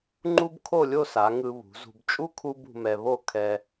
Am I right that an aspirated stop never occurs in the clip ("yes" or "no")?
no